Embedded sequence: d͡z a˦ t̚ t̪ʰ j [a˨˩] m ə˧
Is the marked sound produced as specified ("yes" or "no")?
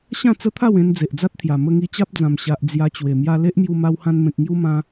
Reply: yes